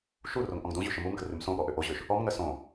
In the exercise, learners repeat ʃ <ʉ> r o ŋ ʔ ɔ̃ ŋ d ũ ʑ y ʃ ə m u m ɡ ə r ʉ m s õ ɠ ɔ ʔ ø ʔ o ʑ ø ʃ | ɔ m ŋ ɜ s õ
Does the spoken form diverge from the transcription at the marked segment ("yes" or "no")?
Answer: yes